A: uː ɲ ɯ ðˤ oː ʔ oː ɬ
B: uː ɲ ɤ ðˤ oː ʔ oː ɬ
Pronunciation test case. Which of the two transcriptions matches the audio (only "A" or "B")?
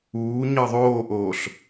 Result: B